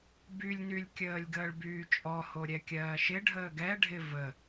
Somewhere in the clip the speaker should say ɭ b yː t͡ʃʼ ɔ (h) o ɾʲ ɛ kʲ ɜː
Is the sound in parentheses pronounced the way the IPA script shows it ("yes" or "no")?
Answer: yes